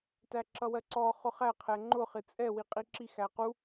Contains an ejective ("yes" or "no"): yes